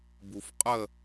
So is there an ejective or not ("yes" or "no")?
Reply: yes